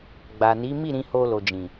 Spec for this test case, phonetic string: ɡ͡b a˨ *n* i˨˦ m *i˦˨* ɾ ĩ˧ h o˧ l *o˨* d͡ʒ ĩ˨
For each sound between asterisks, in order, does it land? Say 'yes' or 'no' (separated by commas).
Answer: yes, yes, yes